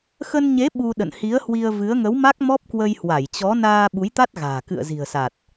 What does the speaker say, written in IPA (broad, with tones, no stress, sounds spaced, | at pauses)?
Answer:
x ə˧ n ɲ e˨˦ ɓ u˧ ɗ ə̰˧˨ n h i˨˦ ə̯ h w i˧ ə̯ v ɨ˨˦ ə̯ ŋ ə˨˦ w m a˦˥ k̚ m ɔ˦˥ p̚ k w ə˧ j h w a˧˩ j t͡ɕ ɔ˨˦ n aː˧ ɓ u˨˦ j t̪ a˦˥ t̚ ɣ a̤ː˨˩ k ɨ̰˧˨ ə̯ z i̤˨˩ ə̯ s a˨˩ t̚